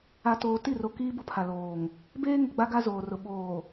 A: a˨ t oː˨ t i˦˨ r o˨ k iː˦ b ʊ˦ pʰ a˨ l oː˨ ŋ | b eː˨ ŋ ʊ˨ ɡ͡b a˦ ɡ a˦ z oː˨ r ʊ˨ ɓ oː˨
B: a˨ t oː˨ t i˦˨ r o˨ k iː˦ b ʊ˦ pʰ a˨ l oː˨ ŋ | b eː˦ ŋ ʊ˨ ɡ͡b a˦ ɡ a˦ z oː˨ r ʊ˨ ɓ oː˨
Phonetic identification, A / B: B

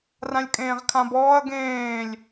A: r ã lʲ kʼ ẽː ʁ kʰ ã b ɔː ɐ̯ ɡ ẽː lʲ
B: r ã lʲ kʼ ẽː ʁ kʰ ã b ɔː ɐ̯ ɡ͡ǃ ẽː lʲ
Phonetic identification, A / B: A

